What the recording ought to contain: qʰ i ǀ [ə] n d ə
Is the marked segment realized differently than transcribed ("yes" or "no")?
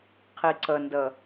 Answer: no